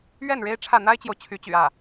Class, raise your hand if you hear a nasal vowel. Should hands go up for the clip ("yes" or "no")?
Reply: no